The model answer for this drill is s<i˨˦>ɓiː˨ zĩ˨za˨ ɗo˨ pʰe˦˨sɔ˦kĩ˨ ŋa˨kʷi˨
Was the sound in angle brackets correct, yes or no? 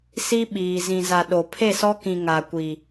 no